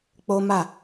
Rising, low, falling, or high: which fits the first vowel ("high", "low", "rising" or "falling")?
high